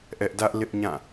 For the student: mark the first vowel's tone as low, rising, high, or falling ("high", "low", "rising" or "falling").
high